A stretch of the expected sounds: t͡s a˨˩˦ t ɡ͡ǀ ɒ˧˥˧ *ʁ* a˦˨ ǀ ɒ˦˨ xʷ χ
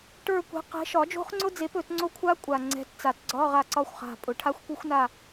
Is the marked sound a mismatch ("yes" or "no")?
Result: no